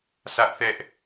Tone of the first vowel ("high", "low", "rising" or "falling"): high